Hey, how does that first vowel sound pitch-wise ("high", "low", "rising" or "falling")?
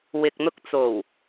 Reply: low